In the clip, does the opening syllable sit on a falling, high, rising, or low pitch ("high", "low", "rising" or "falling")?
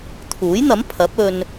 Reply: rising